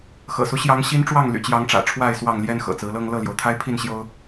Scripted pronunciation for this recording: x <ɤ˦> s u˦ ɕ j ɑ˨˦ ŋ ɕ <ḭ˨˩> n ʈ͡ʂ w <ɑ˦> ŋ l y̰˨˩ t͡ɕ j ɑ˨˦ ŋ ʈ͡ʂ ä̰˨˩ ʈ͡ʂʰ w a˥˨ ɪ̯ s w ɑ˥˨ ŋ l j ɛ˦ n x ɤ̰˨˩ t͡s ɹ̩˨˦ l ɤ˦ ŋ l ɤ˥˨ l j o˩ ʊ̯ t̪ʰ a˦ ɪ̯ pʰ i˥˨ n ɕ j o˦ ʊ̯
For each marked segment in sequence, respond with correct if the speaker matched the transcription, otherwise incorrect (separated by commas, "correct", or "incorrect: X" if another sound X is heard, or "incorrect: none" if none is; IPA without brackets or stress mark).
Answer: incorrect: ɤ̰˨˩, incorrect: i˦, incorrect: ɑ˥˨